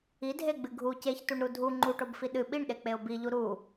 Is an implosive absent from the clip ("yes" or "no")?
no